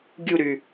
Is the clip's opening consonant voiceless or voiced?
voiced